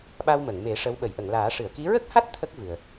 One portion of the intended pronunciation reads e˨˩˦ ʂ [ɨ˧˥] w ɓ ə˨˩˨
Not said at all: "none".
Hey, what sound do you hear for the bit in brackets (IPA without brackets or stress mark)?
ə˧˥